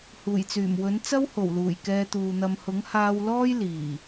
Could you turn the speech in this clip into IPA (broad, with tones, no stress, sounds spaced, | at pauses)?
h uː˨˩ j t͡s yː˨˩ m w ɵ˨˥ n t͡s ɐ˥ w h o˨˩ w l uː˨˩ j k ɛː˧ t̪ uː˨ n̪ ɐ˧ m h ʊ˨˥ ŋ h aː˧ w l ɔː˥ j l iː˨˩